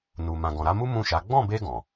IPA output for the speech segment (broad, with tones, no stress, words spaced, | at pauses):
nu˨ mã˨ɡɔ̃˨ɾa˨˦mu˦ mũ˦˨ʃa˨˦ ɡ͡bɔ̃˦˨be˧ ɡɔ̃˨